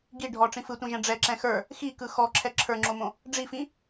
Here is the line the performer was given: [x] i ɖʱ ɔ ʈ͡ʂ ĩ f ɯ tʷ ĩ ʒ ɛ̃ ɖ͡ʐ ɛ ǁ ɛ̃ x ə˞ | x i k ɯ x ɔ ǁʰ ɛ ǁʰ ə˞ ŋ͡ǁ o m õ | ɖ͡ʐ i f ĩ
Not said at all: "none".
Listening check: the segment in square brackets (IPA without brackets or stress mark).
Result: ɡ